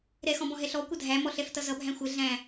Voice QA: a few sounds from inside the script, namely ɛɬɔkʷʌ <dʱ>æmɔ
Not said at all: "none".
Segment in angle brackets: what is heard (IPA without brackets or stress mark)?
dʱ